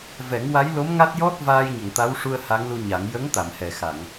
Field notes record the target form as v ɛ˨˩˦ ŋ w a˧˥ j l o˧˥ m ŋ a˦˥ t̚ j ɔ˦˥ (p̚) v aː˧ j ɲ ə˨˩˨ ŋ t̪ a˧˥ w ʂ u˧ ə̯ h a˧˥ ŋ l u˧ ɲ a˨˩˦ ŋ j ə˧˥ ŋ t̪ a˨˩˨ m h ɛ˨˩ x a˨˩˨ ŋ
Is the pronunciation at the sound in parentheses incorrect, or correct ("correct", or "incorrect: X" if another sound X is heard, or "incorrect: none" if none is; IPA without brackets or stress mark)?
incorrect: t̚